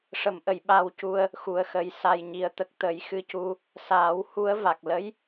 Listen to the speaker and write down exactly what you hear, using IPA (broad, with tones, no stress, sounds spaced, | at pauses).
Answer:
ʂ ə˨˩˨ m ʔ ə˨˩˨ j ɓ a˧ w c u˧ ə̯ | x u˨˩ ə̯ x ə˨˩ j s a˨˩ j ɲ i˨˩˦ ə̯ t̪ ə˨˩ k̚ t̪ ə˨˩˦ j x ɨ˧˥ c u˧ | s aː˨˩˦ w h u˧˥ ə̯ v a˨˩ k̚ l ə˧˥ j